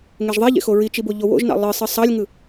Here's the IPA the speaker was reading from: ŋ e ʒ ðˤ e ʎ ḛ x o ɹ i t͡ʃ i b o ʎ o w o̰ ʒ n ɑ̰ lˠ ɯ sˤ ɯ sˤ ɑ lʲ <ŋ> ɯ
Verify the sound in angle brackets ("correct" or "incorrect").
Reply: correct